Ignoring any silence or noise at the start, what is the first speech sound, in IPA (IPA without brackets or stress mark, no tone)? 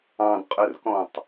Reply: ɑ̃